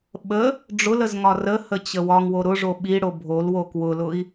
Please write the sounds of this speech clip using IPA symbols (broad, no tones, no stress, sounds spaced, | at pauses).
ɓ ə | ɖ͡ʐ ʊ l ə z ŋ ɒ r ə h ə t͡ɕ ə w ɒ ŋ w o ɾ ʊ ʐ o ɓ i ɽ o bʱ o l w o k w ʊ l ʊ i̯